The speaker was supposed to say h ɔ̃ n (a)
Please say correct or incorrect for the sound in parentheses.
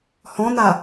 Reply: correct